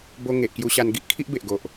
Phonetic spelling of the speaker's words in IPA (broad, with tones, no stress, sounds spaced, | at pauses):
b o˧ ŋ e˨ ʔ k j u˧ ɕ a˧ n ɡ i˦ ʔ kʰ i˦ ʔ b e˨ ʔ ɡ o˨ ʔ